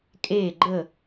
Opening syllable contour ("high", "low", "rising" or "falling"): falling